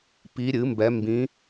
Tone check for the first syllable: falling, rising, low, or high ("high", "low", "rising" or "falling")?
rising